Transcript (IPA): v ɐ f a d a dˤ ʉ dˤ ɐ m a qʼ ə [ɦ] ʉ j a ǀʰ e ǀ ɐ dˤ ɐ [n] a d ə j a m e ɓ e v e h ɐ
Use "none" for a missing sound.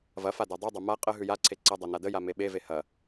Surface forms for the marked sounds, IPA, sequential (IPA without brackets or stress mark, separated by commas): ɦ, n